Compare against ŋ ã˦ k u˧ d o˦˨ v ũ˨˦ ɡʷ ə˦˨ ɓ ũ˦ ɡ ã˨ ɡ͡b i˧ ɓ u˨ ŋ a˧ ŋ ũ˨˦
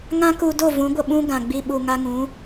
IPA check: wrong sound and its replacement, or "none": none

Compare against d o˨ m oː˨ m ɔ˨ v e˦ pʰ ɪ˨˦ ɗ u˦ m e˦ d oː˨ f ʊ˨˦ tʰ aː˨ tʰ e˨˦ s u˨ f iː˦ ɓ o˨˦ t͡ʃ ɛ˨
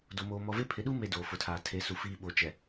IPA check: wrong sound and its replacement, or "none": none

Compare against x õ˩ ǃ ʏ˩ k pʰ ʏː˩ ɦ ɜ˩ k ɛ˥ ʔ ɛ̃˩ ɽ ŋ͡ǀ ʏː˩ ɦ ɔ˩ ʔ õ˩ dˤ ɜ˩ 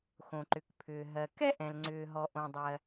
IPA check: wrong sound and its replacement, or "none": ɽ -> l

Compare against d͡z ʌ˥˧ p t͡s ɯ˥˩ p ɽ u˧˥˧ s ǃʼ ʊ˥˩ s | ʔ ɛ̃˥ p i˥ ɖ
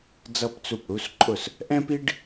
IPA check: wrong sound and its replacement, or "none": ɯ˥˩ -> u˥˩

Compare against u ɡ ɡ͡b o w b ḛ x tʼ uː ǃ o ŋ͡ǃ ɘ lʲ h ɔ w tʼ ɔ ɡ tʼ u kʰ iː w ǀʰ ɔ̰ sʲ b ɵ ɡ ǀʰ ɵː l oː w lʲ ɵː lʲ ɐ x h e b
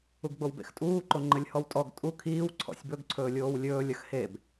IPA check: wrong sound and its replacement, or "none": l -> lʲ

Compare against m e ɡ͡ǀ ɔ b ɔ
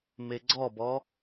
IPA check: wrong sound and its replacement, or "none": none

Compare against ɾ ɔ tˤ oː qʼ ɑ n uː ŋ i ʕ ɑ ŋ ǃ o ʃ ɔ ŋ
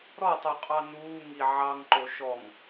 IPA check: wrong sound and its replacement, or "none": oː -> o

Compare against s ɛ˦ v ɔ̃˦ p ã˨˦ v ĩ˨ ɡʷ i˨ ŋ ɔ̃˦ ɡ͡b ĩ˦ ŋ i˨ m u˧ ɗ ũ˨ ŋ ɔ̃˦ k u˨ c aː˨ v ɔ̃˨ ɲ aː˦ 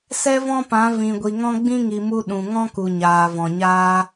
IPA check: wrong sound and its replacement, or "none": c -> ɲ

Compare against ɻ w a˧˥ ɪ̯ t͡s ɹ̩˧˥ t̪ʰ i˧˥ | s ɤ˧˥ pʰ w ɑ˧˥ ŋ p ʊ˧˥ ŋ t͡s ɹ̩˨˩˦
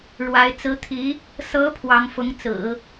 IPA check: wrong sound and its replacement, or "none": p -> f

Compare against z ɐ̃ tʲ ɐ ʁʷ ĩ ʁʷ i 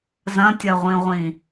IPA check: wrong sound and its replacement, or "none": i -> ĩ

